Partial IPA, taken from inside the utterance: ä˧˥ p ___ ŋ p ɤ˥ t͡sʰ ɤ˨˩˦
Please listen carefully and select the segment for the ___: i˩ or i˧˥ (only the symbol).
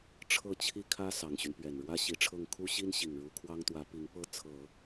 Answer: i˧˥